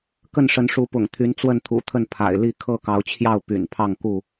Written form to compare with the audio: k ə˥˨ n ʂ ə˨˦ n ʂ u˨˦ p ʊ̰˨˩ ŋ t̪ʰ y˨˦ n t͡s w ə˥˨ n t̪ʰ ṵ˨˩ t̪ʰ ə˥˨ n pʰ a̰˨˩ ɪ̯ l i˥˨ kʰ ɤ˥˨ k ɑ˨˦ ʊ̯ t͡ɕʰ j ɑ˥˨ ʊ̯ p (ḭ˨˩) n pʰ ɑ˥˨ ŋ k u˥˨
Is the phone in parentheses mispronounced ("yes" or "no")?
yes